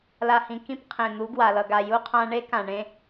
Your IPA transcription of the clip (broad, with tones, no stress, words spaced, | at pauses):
la˨hĩ˨ kĩ˦pqʰẽ˨ n̪u˨˦ ɡwa˨lʌ˨ɡa˨ ju˦qʰã˦ ɳe˦kã˨ɳẽ˦